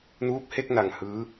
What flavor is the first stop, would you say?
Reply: plain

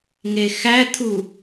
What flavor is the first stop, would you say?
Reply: aspirated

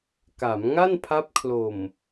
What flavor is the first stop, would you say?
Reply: plain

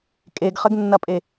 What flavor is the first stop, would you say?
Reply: ejective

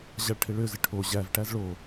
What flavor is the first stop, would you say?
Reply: aspirated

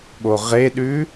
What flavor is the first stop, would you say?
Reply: implosive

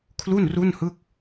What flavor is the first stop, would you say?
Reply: aspirated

